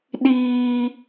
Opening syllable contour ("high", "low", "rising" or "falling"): high